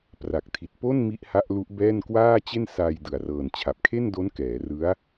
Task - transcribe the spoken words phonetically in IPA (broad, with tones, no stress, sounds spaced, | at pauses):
p r a˨˩ k̚ tʰ i˨˩ t̚ p o˥˩ n m i˦˥ ʔ h a˦˥ ʔ l u˦˥ ʔ b ɛː˥˩ n k w aː˥˩ t͡ɕ e˥˩ n s aː˧ j d ɯ˨˩ a̯ r ɤː˨˩ n t͡ɕʰ a˨˩ p̚ kʰ e˥˩ n d o˦˥ n k ɛː˩˦ r ɯ˦˥ a̯